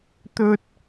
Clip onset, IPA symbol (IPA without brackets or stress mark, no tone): t̪